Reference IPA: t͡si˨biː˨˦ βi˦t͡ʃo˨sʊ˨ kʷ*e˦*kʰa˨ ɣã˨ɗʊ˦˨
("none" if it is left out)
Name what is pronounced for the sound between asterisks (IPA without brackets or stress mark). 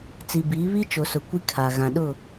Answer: i˦